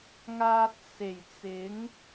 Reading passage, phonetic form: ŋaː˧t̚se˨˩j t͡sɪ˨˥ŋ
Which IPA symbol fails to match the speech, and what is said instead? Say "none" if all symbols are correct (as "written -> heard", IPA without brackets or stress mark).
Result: none